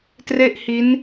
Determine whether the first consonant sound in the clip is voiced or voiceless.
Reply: voiceless